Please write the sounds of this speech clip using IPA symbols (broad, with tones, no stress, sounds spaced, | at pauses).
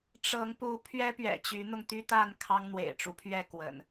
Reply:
ʈ͡ʂ ɤ˨˦ ŋ p u˨˦ pʰ ɥ ɛ˦ p ɥ ɛ̰˨˩ t͡ɕ y˨˦ n̪ ʊ˧ ŋ t̪ y˦ t̪ a˥˨ n kʰ ɑ˦ ŋ n̪ w ḛ˨˩ ɪ̯ ʈ͡ʂ u˦ pʰ ɥ ɛ˥˨ k w ə̰˨˩ n